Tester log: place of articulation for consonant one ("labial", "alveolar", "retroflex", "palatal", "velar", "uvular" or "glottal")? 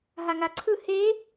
glottal